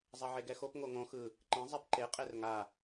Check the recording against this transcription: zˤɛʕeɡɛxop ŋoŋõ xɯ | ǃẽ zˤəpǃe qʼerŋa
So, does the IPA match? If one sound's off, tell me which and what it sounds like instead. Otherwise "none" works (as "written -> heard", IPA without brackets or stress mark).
ə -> ɛ